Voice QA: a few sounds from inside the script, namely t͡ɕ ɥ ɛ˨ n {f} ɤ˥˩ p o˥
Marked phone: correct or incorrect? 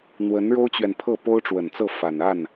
incorrect